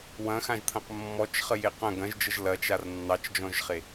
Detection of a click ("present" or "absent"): absent